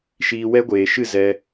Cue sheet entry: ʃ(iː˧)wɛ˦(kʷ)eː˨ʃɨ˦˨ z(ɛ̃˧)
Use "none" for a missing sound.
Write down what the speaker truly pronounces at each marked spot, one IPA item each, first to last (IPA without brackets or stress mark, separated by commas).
iː˧, ɡʷ, ɛ˧